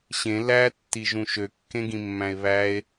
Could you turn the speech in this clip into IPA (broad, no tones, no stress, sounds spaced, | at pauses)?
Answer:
ɕ ẽ l æ tː i ʒ ũ ʃ ø kː ẽ ɡ ĩ mː æ̃ e̯ β æ e̯